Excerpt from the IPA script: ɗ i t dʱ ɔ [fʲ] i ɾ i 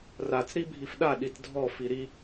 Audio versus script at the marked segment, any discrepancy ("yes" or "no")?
yes